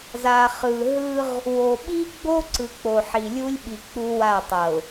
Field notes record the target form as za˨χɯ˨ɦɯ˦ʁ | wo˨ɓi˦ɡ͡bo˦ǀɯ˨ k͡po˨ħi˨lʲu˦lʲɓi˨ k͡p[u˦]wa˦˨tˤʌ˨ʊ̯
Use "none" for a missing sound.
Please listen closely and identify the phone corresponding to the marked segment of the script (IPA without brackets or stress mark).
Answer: u˦